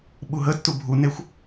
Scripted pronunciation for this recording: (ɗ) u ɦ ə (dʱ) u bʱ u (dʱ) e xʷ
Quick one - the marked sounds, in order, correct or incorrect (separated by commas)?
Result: incorrect, incorrect, incorrect